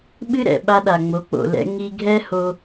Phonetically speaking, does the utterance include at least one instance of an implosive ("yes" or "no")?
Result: yes